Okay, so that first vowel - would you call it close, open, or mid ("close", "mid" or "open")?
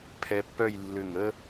mid